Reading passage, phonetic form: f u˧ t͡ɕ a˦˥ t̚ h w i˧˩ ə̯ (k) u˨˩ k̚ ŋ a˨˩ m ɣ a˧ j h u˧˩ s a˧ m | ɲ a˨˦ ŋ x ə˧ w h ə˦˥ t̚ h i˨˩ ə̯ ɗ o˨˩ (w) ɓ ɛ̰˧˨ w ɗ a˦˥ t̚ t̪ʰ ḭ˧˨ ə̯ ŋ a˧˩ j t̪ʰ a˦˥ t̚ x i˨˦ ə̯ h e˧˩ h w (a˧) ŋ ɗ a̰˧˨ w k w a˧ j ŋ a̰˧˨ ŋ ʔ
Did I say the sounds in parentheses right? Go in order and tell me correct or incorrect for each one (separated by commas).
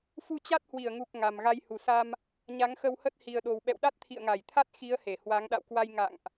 incorrect, correct, incorrect